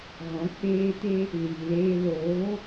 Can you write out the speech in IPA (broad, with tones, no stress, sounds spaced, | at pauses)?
ɣ ɔ̃˨˦ k͡p eː˧ t e˧ | l iː˨ l eː˧ l oː˨˦